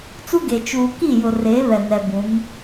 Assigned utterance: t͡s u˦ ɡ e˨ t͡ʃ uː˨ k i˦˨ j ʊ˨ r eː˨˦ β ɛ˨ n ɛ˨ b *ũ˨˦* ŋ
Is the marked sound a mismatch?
no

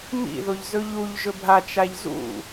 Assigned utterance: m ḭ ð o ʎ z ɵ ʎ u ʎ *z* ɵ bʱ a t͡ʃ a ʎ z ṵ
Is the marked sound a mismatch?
yes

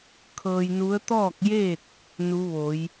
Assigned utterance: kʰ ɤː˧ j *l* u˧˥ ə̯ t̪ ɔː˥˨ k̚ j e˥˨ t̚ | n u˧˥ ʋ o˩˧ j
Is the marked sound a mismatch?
yes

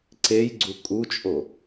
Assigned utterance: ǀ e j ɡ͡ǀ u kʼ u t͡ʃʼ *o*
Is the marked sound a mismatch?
no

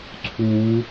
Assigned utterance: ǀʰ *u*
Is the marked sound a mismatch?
no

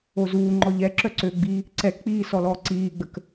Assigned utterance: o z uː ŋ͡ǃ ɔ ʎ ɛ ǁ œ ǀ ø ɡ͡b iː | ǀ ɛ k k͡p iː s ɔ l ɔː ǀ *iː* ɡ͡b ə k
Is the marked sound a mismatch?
no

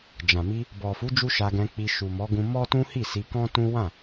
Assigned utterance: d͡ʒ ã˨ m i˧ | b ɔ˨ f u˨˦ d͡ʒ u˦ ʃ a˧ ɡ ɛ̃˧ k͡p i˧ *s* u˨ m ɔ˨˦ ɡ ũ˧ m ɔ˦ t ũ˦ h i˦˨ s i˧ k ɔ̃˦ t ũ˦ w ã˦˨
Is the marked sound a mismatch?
yes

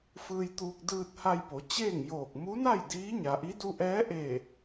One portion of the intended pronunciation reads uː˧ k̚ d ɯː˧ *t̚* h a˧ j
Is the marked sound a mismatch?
no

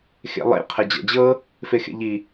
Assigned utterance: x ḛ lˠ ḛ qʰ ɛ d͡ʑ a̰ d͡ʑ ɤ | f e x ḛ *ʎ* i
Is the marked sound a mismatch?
no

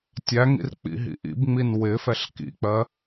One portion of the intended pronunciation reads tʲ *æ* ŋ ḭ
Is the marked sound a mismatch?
no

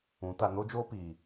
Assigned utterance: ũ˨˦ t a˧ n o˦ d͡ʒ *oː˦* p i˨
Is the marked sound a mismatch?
no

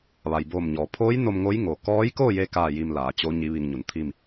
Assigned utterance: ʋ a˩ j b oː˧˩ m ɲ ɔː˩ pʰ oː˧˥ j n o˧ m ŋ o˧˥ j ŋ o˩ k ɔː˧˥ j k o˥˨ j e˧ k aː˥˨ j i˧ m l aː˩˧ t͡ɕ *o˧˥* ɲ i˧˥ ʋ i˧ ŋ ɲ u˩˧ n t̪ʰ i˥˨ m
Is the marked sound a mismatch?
no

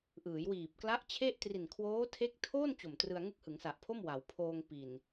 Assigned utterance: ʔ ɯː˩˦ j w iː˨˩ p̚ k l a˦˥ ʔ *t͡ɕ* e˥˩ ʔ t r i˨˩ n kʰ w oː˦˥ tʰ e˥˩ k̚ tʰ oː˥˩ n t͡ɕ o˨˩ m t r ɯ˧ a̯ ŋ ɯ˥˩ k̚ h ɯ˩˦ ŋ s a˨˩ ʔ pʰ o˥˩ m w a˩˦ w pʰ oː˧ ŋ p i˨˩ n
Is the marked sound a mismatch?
yes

